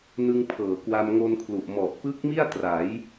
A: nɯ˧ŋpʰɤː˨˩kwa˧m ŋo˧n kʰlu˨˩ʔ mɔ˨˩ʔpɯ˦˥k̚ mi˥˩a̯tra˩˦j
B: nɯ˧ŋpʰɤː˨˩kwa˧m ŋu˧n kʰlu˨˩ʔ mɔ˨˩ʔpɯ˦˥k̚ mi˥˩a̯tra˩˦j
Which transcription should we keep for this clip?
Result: A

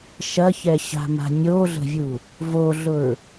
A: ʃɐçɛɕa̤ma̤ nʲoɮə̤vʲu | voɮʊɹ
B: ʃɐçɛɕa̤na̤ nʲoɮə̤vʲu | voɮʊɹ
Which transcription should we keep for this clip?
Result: A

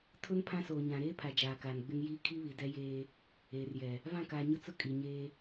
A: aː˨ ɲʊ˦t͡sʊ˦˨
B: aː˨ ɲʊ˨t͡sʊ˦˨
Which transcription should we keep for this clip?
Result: A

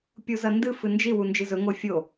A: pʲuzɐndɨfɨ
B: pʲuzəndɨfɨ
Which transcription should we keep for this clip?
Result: A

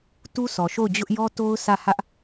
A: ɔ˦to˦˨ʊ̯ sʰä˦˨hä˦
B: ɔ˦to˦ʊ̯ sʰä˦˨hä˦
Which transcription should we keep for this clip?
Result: B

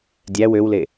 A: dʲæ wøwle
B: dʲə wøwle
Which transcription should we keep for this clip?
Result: A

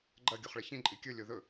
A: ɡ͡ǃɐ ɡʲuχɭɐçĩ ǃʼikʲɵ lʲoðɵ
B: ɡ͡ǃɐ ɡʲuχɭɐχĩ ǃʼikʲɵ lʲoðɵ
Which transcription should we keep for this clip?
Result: A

